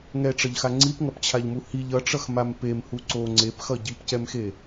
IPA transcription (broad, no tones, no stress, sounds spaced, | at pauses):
ŋ ɛ ʈ͡ʂ ʌ ʎ x a ŋ͡ǀ i p ŋ ʌ p t͡ɕʰ a ʎ m u h i ʎ ʌ ʈ͡ʂ ʌ x m a m p e m h u ǀ o ŋ͡ǀ e p x ʌ ɟ i p c ɛ m x e